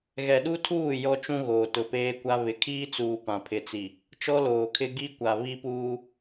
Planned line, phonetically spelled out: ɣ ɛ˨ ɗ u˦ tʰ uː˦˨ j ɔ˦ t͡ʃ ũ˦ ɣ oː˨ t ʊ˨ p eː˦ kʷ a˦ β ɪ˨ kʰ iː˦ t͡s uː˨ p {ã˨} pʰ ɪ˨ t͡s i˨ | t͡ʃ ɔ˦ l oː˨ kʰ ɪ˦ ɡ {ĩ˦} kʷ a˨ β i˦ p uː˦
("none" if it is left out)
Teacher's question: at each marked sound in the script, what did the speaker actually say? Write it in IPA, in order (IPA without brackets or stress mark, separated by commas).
ã˨, i˦